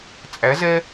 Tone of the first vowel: rising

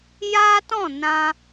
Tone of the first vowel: high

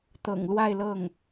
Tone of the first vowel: low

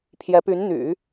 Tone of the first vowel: rising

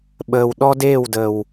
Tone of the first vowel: low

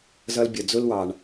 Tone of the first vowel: high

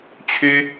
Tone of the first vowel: high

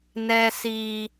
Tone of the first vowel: high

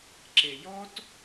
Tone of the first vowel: low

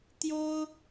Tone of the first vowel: high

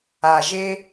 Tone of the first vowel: low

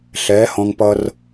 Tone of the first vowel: rising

